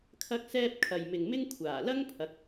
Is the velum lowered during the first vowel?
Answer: no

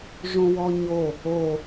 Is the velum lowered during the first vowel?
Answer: yes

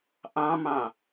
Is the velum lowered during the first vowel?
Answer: yes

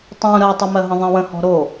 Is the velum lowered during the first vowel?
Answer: yes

